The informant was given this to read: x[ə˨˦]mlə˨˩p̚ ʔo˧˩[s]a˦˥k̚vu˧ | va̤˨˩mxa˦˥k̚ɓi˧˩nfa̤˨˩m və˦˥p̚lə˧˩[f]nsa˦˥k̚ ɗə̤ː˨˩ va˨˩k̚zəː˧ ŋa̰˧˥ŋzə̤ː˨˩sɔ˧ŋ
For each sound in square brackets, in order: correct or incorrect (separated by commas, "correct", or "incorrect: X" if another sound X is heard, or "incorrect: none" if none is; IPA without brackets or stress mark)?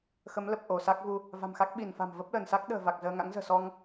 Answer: correct, correct, incorrect: none